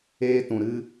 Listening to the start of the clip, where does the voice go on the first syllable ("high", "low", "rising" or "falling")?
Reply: high